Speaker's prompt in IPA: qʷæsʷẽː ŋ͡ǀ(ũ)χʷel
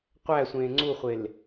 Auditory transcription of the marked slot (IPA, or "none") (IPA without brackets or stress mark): u